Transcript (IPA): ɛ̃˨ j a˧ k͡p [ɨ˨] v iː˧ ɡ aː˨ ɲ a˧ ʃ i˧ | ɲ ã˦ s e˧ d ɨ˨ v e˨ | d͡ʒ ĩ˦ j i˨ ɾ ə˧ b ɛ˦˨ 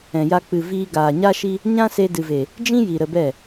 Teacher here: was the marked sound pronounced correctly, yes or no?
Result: yes